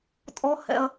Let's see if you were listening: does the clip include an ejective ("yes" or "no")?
yes